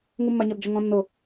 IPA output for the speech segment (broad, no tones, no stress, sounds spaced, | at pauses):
ŋ u mː a ɲ ɔ d d͡ʒ ʊ ŋ ɔ̃ nː ʊ